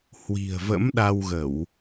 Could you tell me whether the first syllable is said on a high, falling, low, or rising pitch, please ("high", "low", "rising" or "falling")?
low